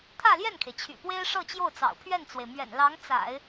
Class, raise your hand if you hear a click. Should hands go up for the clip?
no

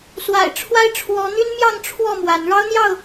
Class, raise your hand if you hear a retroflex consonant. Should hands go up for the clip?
yes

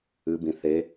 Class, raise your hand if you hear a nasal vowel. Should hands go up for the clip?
yes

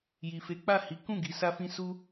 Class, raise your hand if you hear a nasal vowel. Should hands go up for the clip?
yes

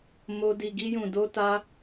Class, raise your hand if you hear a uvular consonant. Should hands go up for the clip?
no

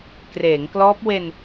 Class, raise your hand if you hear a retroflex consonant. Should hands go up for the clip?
no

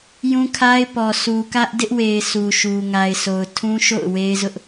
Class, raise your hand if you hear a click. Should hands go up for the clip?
no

